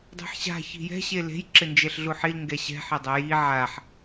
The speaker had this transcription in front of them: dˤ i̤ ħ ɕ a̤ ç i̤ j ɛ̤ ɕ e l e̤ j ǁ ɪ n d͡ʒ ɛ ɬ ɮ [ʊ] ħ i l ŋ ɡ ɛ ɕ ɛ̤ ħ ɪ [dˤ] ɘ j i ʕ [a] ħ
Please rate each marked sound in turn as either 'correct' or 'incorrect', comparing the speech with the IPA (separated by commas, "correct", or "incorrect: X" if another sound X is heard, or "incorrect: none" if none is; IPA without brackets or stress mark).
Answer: incorrect: u, correct, correct